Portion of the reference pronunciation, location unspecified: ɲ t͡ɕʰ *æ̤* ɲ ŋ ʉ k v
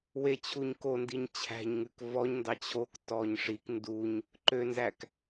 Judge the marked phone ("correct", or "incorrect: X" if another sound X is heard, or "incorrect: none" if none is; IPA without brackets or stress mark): correct